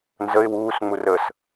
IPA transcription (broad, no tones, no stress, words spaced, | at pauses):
nzəɪ̯ wuːsŋ͡mu rəs